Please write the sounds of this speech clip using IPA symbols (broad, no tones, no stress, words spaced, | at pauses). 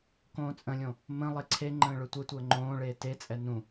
kõːt͡sʼə̃lʲõ | mə̃ lˠeǀʰeŋ͡ǃə̃ː ɭøtʷɛtʷəː ŋ͡ǃõːɭeː tet͡sʼɛ nũ